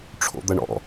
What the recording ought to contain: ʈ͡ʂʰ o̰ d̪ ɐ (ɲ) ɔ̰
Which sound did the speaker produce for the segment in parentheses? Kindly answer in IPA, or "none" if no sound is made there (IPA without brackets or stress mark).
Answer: ɳ